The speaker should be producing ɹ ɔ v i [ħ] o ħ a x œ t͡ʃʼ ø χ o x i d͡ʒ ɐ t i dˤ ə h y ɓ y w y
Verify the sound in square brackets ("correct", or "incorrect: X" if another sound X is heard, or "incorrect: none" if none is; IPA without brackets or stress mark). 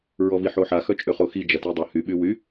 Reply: correct